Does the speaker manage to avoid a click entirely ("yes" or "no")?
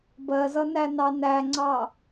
no